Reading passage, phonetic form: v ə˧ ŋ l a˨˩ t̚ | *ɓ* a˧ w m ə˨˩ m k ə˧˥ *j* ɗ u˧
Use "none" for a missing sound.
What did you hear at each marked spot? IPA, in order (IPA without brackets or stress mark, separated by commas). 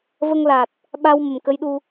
ɓ, j